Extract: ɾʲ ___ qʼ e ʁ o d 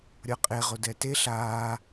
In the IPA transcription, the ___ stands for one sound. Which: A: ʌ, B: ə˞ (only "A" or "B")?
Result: A